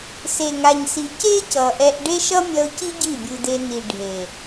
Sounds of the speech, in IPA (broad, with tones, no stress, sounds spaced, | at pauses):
s e˨ ŋ a˨ ɲ s i˨ c e˦ c ʌ˨ ʔ ɛ˧ ʔ ɖ e˦ ʃ ʌ˦ mʲ ʌ˧ ʊ̯ c i˦ ɟ i˦˨ bʲ ɯ˧ d e˧ n i˨ ɖʱ e˨